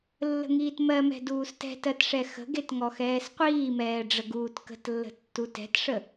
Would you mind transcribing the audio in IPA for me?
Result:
lː ə̤ ŋ iː t m ɜ m ɛ̤ d uː s t ɛ̤ t ɜ t ʂ ɛ x ə̤ ɡ e t ŋ ɔ x ɛː s qʷ iː m ɛː ɖ͡ʐ ə ɡ uː t k ə̤ t lː ə̤ tː u t ɛ̤ t ʂ ə

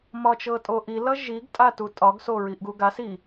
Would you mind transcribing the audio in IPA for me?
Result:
m ɒ t͡ʃ ɤ tʼ o ʔ i l ʌ ʒ i ɡ tʼ a t u tʼ ɒ ɡ s o ɹ i ʔ ɡ u ɡ a s i

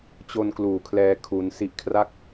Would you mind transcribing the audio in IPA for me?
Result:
t͡ɕ o˧ n k l uː˨˩ kʰ l ɛː˧ kʰ u˧ n s i˦˥ ʔ kʰ r a˥˩ k̚

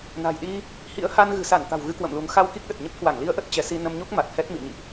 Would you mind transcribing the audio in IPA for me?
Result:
n a̤˨˩ j ɗ i˧ | h ḭ˧˥ ə̯ h a˧ n ɣ ɨ̤˨˩ s a˧˩ n t̪ a̤˨˩ w ɣ ɨ˧ k w ə̰˧˨ m l u˨˦ ŋ x a˧ w k i˦˥ k̚ ɗ ə˨˩ t̚ ɲ ə˦˥ p̚ k w a˧˩ ŋ l i˧ ə̯ ʔ ə˦˥ t̚ t͡ɕ ɛ˨˦ s i˧ n ə˧ m ɲ u˦˥ k̚ m a˨˩ t̚ h ɛ˦˥ t̚ m ḭ˧˨ ə̯ ɲ ḭ˧˨ ʔ

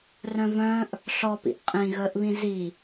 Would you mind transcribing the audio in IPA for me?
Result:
r œ̃ v œ̃ː ʔ | ɬ ɔ p ḭ ʔ qʼ ĩ ɣ əː ʔ β ĩ z i

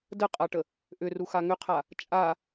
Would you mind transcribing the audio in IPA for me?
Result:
d ə qʼ a ʈ ə | ʔ ʏ r u x a ŋ ʏ qʰ a | t͡ʃʼ a

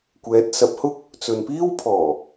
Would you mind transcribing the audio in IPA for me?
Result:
kʷ ɛː˨˥ t̚ s ɐ˨˥ p̚ h ʊ˥ k̚ | t͡s ɵ˨ n p iː˥ w pʰ ɔː˨˩

